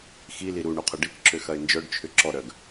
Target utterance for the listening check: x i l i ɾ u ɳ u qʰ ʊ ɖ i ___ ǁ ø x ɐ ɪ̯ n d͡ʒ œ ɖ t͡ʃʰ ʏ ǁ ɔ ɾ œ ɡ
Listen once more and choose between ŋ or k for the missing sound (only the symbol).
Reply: k